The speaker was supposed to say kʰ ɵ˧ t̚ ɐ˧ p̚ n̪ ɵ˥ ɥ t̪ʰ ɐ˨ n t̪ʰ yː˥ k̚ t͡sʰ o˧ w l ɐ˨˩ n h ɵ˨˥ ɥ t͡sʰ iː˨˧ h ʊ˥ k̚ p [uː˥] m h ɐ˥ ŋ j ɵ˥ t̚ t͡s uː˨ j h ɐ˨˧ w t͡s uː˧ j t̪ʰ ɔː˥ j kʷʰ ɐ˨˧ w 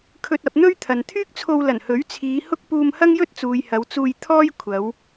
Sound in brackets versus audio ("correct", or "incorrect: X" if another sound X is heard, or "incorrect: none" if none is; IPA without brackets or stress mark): incorrect: uː˧